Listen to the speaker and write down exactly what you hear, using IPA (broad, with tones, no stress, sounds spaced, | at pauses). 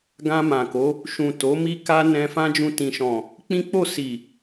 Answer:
ɡ ã˧ m ã˨ k o˨˦ | ʃ ũ˨ t o˨˦ m i˦ k a˦ n ɛ̃˧ f ã˦ d͡ʒ ũ˧ t ĩ˨ ʃ ɔ̃˨ | k͡p ĩ˦ k͡p o˦˨ s i˨